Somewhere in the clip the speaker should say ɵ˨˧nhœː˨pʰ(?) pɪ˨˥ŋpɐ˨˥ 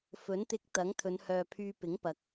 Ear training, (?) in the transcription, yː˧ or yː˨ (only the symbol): yː˧